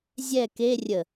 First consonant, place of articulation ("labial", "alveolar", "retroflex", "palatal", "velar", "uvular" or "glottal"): alveolar